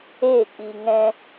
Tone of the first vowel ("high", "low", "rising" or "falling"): falling